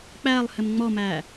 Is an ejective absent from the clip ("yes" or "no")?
yes